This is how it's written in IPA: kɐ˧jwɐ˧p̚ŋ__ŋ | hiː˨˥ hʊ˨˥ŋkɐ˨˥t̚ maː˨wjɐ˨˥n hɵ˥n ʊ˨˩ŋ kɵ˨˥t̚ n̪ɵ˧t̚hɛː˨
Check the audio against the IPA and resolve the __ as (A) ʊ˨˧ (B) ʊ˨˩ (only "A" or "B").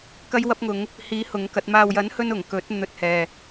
A